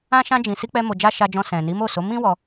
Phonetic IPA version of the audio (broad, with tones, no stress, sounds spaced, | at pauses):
ã˧ ʃ ã˧ d͡ʒ ĩ˨ s i˧ k͡p ɛ˧ m o˨ d͡ʒ a˧ ʃ a˧ d͡ʒ ɔ̃˧ s ɛ̃˨ n i˨˦ m o˦˨ s o˨˦ m ĩ˦ w ɔ˧